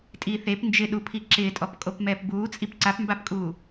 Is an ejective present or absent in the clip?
present